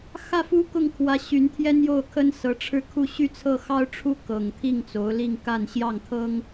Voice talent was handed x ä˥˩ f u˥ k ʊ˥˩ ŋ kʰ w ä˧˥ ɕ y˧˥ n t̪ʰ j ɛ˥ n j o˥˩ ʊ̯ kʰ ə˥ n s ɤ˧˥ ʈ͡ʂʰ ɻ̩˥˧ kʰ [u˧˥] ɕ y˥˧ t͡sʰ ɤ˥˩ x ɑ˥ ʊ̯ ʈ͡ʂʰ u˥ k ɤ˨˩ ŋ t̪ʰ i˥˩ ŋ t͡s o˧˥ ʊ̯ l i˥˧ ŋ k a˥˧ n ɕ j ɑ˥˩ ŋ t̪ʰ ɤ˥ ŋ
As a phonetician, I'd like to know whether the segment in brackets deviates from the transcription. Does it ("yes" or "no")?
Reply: yes